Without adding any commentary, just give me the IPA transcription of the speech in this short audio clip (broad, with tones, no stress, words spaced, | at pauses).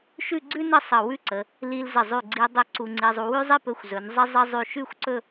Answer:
ʃʉ˥˧ɡ͡ǀʉ˥nə˥˧ sˤə˧˩wʉ˥˧ ǀə˩˧ | li˧lzə˧˩ zˤʉ˧˩ɡ͡ǀi˧ dˤɵ˥˧ǀu˧ŋ͡ǀi˧zˤu˧ wʉ˥zˤi˥pɵ˧xʷ zɵ˩˧n zˤə˥ zˤə˥ zˤʉ˧˩ʃʉ˥˧xʷǀɵ˥˧